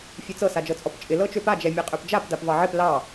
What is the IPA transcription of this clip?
fʲet͡sɤ sad͡ʒɤt͡sʼɔpt͡ʃʼɪ lɤt͡ʃøpa d͡ʒɛmʲeqʼøpd͡ʒap dapvɑʕɪp lɑ

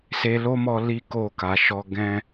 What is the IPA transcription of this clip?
se˧lo˦mɔ˧ li˦ko˦˨ka˨˦ʃɔ˦ ɡɛ̃˦

